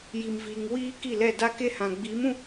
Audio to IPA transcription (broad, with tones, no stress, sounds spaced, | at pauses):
j i˨ m v iː˨ ŋ w iː˦ k i˦˨ l ɛ˦˨ d a˦ k e˦ h ã˨ ɡ͡b iː˨˦ m ũ˦